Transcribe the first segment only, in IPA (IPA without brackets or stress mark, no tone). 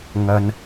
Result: ŋ